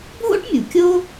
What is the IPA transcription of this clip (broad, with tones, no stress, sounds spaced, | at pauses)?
bʱ o̰˥ ʈ mʲ u˩ kʲ o˥